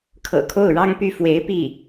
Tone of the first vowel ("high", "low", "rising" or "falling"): low